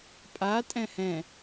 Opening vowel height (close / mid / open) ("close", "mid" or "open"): open